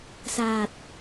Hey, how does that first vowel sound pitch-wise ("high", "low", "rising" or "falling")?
low